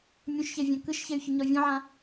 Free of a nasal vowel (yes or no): no